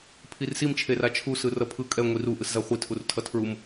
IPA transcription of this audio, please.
pʰirsim t͡ʃʰerat͡ʃʰu sɯrʌpʰɯ kʼɛ ŋʷiru ʔɯszaχʷi tʰurtʰʌtʰɹum

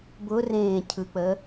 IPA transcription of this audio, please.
bʊrẽːcʰɯk͡pə

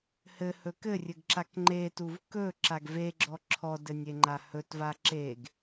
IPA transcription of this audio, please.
hɘhɵ kɘrʲɘɡǁak ŋ͡ǃetuv kɵ ǁaɡveɡ͡ǁɔ ǁʰɔdɘnʲeŋ͡ǃa hɵt vaǁeɡ

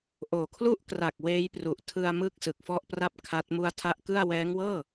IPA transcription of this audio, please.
ʔoː˨˩kʰlu˥˩ʔkra˨˩k̚ weː˦˥jpru˨˩ʔ tʰɯ˧a̯mɯ˦˥k̚ sɯ˨˩k̚fɔ˥˩ʔpra˥˩p̚kʰa˦˥t̚ mu˧a̯ tʰa˦˥ʔkɯ˥˩a̯ wɛː˦˥ŋwɤː˥˩

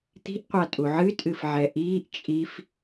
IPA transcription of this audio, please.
t̪i̤ʔqʷatʼu ʕɨtʼɨfʕɛ ʔiːʔ t͡ʃʼif

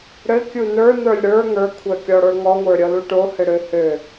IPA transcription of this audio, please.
ɽɘ kʲunə˞nə˞lʲ ɽə˞ ŋə˞kʷʰœkʲɔɽə˞ ŋɔŋʷə˞ ɾʲɔluʈohɘ ɽøhø

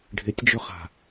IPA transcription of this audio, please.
ɖʱɪtʲd͡ʒɵχa̤

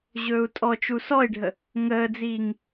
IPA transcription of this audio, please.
ʑɵːu̯tʼɔt͡ʃu sɔi̯ɖʱə | ŋəːd͡ziːŋ

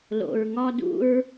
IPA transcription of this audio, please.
lo̰˨ɹŋɒ˧dṵ˧ɹ

